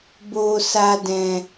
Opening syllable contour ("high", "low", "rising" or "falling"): low